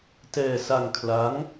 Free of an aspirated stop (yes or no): no